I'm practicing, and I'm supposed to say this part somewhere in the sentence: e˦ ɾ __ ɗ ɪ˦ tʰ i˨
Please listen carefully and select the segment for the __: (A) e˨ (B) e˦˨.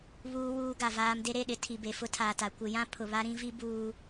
B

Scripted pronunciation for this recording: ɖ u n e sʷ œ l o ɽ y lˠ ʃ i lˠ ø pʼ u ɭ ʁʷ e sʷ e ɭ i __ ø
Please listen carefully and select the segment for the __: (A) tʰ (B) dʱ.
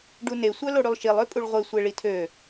A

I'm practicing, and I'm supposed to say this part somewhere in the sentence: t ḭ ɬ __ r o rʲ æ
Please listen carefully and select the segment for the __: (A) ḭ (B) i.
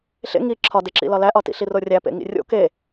B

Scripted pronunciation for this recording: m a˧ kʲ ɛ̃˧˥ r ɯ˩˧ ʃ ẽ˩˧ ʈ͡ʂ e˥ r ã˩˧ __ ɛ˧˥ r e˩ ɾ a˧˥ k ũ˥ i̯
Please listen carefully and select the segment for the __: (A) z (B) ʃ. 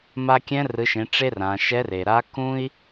B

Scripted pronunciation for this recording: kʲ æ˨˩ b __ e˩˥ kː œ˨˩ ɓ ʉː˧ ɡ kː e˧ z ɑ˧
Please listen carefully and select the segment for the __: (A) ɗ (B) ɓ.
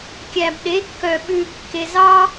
A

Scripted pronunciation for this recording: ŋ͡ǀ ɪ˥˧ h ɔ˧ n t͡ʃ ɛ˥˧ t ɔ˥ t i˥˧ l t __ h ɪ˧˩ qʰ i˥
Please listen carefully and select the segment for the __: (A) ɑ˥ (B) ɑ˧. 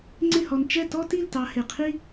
B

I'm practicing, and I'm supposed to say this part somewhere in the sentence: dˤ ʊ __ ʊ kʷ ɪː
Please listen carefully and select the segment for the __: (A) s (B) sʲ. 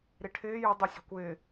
B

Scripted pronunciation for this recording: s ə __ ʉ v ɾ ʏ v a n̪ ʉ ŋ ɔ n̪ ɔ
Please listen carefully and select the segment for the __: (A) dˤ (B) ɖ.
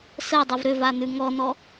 A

